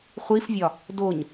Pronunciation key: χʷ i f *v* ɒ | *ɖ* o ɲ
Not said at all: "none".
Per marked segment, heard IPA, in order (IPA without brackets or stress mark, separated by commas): vʲ, d